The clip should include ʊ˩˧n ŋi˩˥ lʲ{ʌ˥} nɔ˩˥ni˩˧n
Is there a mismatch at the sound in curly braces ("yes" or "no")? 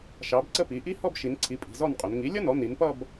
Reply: no